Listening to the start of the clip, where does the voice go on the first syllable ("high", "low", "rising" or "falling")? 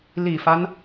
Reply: low